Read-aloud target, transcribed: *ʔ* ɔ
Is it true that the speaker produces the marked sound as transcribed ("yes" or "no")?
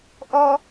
yes